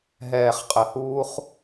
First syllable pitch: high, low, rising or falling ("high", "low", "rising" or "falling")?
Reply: low